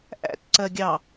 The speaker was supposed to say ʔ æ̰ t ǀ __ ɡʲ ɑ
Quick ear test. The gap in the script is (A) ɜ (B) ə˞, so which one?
A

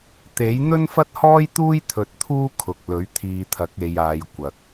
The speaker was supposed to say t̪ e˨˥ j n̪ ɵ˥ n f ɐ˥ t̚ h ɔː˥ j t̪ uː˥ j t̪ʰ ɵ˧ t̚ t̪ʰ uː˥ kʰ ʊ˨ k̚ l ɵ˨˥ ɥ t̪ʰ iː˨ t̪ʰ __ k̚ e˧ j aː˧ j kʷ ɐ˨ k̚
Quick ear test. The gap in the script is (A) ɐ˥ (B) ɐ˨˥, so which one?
B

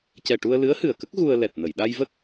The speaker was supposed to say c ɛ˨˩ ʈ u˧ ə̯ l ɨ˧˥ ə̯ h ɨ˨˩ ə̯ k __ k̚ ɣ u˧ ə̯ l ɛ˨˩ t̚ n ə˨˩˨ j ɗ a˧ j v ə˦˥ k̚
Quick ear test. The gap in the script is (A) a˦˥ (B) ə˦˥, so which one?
B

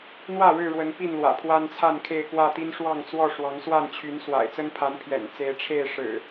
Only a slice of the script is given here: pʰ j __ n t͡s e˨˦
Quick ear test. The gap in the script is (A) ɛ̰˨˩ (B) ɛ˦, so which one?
A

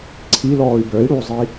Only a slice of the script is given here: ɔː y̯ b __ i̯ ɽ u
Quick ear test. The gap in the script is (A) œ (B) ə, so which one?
A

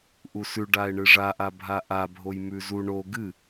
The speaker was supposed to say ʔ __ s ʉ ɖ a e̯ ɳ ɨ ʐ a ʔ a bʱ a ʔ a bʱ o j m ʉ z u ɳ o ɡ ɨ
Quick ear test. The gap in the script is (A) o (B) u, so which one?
B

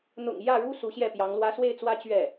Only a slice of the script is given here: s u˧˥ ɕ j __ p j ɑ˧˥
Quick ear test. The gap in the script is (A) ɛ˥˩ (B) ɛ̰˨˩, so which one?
A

